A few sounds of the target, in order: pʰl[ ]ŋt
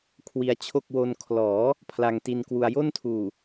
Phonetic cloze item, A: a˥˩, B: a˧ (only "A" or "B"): B